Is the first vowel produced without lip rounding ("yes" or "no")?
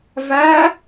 yes